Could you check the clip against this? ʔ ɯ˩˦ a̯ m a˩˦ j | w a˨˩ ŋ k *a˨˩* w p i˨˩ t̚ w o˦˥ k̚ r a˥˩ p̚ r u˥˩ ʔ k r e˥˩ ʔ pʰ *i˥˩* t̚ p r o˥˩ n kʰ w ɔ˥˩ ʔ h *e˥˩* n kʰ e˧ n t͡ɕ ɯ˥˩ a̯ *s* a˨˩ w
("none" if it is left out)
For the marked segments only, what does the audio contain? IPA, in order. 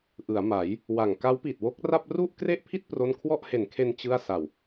a˦˥, i˥˩, e˨˩, s

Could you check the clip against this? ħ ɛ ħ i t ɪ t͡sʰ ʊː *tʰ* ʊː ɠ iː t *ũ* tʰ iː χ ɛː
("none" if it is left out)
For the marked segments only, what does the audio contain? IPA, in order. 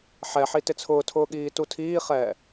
tʰ, u

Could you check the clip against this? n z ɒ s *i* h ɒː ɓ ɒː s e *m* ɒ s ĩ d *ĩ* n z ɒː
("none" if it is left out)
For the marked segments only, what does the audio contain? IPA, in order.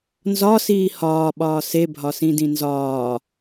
iː, bʱ, ĩ

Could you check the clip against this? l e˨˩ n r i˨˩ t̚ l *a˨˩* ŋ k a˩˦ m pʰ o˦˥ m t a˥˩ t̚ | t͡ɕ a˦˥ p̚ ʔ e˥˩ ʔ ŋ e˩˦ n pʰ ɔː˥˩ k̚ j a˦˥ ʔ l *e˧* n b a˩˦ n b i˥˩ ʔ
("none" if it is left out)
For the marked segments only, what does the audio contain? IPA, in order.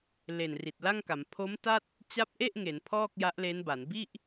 a˥˩, e˦˥

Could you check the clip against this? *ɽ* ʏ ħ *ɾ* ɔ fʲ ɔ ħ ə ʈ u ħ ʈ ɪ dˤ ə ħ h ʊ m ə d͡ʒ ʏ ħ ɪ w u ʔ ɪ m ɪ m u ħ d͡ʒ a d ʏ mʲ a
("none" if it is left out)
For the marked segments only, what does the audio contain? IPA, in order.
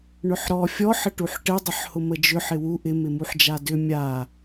ɳ, ɾ

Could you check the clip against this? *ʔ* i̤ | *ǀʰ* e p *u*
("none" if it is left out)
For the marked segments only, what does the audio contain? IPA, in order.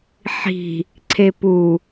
ħ, ǀʰ, u

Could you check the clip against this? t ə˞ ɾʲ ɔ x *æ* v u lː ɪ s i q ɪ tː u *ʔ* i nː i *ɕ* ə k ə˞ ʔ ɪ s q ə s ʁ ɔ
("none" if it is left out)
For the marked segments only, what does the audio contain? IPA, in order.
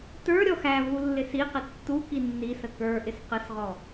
æ, k, s

